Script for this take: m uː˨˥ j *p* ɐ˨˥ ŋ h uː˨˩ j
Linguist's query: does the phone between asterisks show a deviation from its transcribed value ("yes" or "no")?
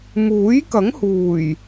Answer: yes